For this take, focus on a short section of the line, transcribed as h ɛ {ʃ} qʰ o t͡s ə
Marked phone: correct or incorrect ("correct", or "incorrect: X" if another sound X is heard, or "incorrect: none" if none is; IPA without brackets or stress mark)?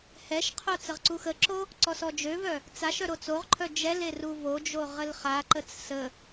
correct